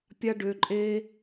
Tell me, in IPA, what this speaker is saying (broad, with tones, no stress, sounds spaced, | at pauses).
pʲ a˥ ɖ ø˩˧˩ ǃʼ eː˥